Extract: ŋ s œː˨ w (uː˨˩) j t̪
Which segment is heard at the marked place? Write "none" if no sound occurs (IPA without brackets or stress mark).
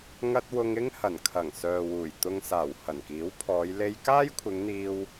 uː˨˩